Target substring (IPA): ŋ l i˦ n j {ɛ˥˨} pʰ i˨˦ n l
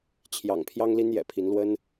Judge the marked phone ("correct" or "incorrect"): incorrect